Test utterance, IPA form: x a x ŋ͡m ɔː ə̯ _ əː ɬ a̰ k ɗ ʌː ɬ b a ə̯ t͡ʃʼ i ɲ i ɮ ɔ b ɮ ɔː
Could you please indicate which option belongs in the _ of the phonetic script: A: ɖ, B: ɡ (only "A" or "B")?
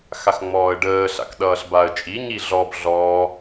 A